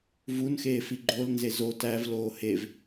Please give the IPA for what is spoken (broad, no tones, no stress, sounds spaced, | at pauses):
v u n x eː f i ɡ͡ǃ o l n z e z o t æ v l oː h e v